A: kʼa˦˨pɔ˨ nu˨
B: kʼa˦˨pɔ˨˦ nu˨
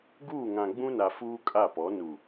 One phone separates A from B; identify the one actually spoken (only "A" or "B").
B